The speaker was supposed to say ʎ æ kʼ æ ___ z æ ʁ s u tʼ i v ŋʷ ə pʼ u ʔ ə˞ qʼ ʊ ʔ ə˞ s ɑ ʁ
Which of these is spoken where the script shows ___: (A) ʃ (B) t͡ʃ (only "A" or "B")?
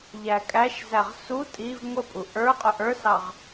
A